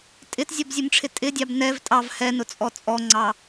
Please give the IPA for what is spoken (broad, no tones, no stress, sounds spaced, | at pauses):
tʼ ɪ t zʲ ɔ b zʲ ʊ m ʈ͡ʂʰ ɪ tʼ ɪ dʲ ɑ b n ɛ v tʼ ɑ v h ɛ n ʊ t͡sʼ ɔ t͡sʼ ɔ ŋ͡ǀ ɑ